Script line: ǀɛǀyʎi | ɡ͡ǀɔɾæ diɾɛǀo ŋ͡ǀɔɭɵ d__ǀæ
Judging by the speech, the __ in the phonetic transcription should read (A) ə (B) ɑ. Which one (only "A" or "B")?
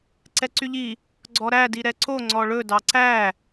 B